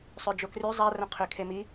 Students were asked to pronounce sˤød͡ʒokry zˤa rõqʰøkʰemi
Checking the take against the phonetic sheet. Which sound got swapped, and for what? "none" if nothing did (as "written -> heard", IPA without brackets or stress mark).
none